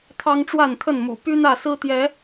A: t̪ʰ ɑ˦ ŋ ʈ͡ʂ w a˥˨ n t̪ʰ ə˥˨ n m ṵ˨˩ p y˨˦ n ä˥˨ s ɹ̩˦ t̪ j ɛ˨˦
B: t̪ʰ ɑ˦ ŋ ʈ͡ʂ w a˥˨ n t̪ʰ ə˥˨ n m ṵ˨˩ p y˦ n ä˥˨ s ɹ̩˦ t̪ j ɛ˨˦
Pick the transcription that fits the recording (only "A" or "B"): B